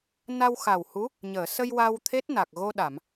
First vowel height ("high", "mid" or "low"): low